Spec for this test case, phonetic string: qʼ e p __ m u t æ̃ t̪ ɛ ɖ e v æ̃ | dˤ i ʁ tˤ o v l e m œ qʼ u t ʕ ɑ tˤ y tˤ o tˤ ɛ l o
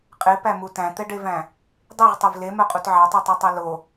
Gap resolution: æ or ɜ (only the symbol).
æ